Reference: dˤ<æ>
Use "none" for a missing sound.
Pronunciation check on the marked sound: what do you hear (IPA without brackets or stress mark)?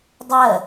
ɜ